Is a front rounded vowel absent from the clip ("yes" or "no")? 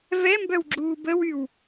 no